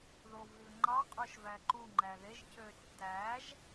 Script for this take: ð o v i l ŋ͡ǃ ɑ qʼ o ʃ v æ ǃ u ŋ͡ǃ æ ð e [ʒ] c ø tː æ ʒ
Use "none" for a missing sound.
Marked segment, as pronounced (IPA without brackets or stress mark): ʒ